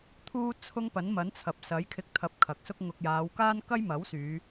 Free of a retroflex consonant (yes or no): yes